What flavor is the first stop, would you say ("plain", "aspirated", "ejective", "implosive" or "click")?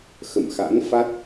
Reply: plain